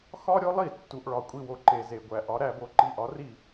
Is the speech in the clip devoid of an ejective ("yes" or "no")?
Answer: no